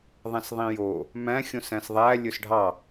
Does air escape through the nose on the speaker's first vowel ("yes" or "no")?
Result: yes